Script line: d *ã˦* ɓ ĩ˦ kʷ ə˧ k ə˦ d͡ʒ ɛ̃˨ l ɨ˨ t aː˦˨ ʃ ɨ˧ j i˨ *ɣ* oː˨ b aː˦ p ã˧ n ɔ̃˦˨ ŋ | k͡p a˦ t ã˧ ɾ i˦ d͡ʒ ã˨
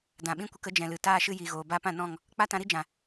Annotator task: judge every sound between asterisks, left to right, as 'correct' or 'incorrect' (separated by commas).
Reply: incorrect, correct